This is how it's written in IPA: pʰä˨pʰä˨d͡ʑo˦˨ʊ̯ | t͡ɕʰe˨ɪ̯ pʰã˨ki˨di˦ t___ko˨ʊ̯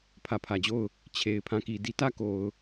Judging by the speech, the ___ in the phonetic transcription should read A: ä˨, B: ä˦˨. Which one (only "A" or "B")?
B